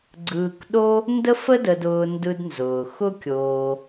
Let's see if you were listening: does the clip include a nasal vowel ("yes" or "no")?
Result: no